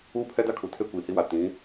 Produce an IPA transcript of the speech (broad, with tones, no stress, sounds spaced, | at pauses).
uː˦ pʰ ɛ˦ d a˦ kʰ u˨ tʰ e˦ kʷ iː˨ h i˦ w a˨ t ĩ˨˦